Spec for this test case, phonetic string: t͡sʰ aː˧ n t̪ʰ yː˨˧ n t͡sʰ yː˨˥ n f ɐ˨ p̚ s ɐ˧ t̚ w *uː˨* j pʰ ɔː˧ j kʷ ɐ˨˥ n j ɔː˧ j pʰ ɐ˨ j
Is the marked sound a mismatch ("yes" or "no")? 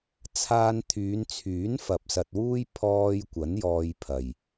yes